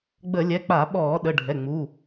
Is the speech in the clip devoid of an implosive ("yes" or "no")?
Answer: no